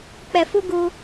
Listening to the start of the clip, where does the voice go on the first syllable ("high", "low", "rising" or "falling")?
low